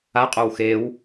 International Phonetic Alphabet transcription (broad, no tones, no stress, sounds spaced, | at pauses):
a qʼ o w x e w